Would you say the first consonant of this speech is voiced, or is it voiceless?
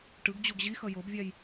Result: voiceless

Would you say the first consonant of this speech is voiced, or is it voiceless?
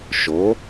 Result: voiceless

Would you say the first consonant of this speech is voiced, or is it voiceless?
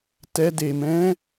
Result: voiceless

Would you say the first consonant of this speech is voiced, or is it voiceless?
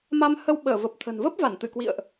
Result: voiced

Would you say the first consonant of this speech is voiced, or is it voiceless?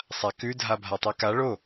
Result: voiceless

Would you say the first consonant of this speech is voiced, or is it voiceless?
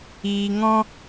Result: voiced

